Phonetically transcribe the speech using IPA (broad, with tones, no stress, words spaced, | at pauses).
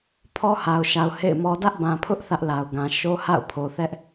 pʰɔ˦ha˨ʊ̯ʃa˨ʊ̯ hḛ˦˨ɪ̯mɔ˦ dä˦ʔbã˨pʰʊ˦ʔ θä˦ʔla˨ʊ̯ɡã˨ ʃo˦ha̰˦˨ʊ̯pʰo˨ θɛ˦ʔ